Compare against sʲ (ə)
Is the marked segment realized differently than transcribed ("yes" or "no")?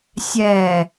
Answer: yes